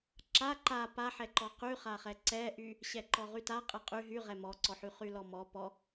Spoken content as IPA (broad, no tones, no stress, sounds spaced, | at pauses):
ǁ a ǃ a p a ħ ɛ ǃ ɔ q y χ a χ ɛ ǀ ɛ ʔ y | ɕ ɛ ǃ ɔ ʁ y t a qʼ ɛ qʼ y ɦ y ʁ ɛ m ɔ ǀ ɔ ħ y χ y l ɔ m ɔ p ɔ